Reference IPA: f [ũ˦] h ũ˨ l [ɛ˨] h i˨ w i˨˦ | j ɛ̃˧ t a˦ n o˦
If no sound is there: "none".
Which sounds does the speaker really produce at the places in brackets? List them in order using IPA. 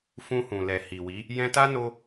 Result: ũ˧, ɛ˨

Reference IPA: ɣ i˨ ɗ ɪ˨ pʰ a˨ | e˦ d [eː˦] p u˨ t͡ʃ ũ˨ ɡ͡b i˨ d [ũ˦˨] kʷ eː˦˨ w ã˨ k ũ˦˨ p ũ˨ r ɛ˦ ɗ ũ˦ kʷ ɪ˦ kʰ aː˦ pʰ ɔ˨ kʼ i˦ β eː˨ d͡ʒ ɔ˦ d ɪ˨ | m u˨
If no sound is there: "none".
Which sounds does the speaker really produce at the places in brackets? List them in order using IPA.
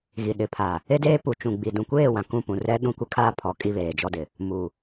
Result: eː˦, ũ˨

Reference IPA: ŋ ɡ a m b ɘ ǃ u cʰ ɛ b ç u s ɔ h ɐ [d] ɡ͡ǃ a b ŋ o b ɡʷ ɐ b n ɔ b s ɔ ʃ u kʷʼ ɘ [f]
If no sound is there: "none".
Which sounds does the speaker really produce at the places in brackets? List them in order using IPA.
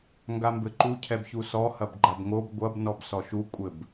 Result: b, b

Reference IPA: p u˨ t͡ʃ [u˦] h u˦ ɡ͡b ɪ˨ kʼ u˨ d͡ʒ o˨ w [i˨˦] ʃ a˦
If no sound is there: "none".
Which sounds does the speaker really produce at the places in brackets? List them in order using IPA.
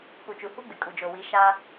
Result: u˨, i˨˦

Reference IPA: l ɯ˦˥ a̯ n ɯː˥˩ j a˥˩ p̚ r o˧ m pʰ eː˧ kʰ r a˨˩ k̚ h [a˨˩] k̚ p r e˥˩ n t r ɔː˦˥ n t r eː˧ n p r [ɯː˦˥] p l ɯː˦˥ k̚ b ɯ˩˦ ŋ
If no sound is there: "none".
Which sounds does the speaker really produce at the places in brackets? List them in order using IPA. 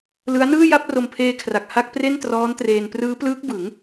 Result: a˥˩, ɯː˦˥

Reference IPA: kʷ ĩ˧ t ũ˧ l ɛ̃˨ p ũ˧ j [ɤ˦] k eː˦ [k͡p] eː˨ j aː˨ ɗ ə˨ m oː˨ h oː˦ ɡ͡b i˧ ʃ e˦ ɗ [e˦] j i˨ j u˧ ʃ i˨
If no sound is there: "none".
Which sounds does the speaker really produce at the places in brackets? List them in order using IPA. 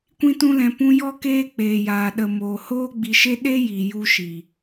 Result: ɔ˦, k͡p, e˦

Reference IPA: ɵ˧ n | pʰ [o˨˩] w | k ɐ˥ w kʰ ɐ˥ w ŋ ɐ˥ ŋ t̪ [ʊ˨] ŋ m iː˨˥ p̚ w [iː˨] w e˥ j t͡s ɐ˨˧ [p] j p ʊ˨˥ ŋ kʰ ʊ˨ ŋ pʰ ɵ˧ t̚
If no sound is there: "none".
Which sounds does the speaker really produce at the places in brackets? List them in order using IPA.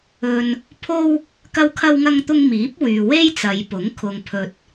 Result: o˥, ʊ˥, yː˨, none

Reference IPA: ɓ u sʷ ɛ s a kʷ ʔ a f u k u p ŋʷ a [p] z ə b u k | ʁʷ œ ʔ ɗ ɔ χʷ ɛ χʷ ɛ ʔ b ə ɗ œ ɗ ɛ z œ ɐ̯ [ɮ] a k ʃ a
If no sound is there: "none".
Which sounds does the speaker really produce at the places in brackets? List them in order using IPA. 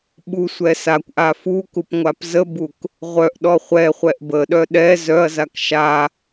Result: p, z

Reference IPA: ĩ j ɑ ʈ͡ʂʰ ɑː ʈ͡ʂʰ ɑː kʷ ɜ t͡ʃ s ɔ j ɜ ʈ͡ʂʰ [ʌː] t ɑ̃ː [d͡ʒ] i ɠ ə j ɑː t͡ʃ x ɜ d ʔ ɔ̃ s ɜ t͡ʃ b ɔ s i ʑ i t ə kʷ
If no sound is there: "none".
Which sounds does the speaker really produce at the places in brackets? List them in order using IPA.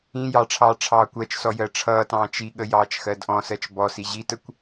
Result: ʌː, t͡ʃ

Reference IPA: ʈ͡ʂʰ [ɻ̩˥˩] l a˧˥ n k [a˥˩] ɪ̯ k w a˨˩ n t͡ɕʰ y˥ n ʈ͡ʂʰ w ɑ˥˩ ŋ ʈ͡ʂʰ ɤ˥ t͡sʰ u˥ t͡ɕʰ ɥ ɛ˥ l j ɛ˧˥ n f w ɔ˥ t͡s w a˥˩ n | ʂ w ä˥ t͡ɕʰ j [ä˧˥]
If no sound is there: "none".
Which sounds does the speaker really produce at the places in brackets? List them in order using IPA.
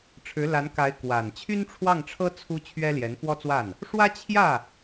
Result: ɻ̩˧˥, a˧˥, ä˥˩

